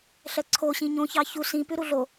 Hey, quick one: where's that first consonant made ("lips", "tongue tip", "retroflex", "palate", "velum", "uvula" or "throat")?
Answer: tongue tip